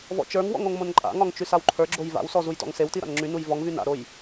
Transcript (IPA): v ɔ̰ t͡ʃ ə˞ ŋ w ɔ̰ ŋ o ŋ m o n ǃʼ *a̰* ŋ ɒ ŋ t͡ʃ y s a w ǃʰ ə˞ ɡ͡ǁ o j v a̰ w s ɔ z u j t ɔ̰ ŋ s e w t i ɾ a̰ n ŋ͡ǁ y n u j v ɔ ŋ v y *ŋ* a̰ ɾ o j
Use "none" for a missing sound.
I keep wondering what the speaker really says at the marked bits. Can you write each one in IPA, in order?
a̰, n

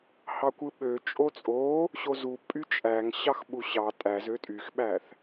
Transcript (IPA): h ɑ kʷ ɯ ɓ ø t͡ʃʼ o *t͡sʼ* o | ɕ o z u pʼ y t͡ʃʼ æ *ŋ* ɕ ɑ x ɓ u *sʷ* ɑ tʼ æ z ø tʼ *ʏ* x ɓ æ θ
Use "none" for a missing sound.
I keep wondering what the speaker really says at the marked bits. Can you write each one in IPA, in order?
t͡sʼ, ŋ, ɕ, y

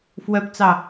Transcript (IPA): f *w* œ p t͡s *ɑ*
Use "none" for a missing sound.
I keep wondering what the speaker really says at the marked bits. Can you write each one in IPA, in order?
w, ɑ

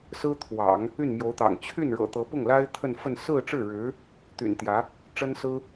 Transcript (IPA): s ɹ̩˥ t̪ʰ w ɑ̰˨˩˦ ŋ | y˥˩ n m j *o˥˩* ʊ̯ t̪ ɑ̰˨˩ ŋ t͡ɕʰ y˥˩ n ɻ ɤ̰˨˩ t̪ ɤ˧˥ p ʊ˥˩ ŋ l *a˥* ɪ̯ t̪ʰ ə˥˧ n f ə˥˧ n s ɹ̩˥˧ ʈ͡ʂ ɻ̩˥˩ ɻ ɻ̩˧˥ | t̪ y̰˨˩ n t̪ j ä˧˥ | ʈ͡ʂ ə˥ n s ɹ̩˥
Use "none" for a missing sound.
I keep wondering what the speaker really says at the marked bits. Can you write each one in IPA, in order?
o˧˥, a˥

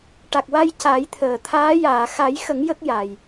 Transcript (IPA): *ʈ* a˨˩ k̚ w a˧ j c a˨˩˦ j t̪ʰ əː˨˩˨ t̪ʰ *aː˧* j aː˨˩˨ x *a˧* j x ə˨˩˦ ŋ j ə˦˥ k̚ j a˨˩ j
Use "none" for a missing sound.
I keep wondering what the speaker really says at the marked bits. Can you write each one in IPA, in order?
ʈ, aː˧˥, a˨˩˦

